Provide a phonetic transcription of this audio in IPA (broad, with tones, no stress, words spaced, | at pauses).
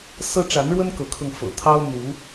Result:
sɤ˦ʈ͡ʂa˨˦nɻwə˦n kɤ˨˦kʰɤ˧ŋ fɤ̰˨˩ t̪ʰɑ˦ʊ̯ n̪u˨˦